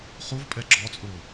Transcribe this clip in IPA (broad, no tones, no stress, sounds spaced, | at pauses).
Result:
χ u v pʼ ɛ ɡ͡ǁ ɔ t͡sʼ ʊː